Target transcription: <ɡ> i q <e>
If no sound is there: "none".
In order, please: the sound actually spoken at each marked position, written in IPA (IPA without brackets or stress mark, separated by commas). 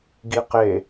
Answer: ɡ, e